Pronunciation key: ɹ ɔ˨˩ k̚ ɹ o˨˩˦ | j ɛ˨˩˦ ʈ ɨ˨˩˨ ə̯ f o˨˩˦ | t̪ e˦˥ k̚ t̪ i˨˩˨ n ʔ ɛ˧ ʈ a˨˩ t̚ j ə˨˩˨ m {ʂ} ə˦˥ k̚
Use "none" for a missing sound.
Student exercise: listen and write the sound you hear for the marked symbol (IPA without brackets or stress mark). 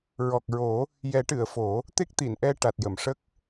ʂ